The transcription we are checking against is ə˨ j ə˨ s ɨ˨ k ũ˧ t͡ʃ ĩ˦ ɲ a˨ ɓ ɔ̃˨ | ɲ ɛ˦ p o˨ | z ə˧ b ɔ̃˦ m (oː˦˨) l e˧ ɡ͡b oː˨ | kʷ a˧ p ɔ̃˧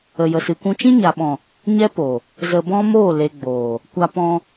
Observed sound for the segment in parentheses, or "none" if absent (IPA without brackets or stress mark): oː˦˨